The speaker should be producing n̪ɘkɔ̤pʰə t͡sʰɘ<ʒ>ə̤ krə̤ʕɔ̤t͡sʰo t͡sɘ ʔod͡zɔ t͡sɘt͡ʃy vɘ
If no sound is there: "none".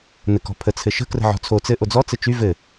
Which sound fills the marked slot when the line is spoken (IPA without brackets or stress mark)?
ʃ